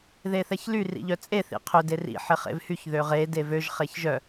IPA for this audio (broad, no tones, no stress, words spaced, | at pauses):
ðeθɛçly rḭʎœt͡sʼe θḭqʰʏ derḭ ħɪχḛvhyç ðøʁe devøʒ χeçʒœ